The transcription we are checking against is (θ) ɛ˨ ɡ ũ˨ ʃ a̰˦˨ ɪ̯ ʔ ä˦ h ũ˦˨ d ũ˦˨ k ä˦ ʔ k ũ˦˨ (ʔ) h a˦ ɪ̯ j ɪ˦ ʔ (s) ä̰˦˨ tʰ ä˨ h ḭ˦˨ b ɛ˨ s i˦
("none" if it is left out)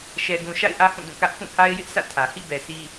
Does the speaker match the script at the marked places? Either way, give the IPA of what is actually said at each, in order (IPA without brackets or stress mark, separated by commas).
ʃ, none, s